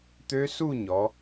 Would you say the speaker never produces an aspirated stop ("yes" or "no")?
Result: yes